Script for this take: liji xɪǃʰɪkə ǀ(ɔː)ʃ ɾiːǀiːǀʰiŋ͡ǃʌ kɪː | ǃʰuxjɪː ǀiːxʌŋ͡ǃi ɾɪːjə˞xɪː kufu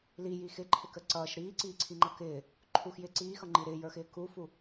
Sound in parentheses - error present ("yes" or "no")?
yes